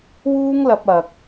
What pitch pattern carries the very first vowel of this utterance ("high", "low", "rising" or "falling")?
high